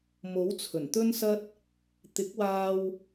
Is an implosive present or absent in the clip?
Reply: absent